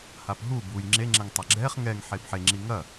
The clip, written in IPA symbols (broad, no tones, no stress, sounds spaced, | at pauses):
h a p ɦ u b u j ŋ͡ǁ e ŋ͡ǁ ɛ ŋ tˤ ɐ ɡ͡ǁ ɛ χ ŋ ɛ ŋ ħ e b ħ e ŋ͡ǁ i ŋ ɐ